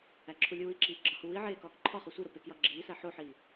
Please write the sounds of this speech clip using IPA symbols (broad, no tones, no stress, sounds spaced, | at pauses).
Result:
æ ǁʰ u lʲ uː i̯ ǁ iː ɡ͡ǁ ɒ h uː i̯ ʕ eː k ɒː k ǃʰ ɒ χ o sʷ i ɾ o p e k j ɒ ɡ͡ǁ iː s æ ħ o ħ iː